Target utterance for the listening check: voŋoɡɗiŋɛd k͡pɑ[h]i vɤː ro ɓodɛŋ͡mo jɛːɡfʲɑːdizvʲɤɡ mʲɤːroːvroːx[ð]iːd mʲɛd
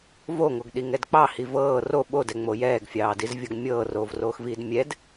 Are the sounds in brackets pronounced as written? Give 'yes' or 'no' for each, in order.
yes, no

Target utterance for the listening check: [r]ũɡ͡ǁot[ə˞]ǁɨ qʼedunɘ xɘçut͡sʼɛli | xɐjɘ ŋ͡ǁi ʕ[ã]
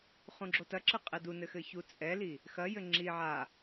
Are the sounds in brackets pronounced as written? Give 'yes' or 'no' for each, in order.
no, no, no

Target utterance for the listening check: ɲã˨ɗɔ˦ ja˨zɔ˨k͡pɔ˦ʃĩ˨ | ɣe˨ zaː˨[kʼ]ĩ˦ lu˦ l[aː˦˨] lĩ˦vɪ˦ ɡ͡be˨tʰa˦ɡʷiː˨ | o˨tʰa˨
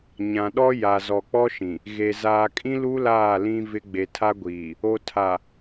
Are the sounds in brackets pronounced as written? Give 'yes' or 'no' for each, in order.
yes, yes

